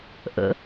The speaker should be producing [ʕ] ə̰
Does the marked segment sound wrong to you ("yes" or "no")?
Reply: yes